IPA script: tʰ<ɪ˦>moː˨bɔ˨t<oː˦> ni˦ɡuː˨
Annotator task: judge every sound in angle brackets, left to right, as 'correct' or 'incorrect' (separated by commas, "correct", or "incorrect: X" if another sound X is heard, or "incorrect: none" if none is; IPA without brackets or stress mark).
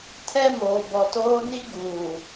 incorrect: ɛ˦, correct